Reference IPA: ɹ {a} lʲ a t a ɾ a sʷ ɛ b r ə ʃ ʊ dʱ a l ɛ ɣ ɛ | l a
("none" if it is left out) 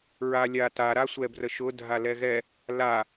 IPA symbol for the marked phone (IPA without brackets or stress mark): a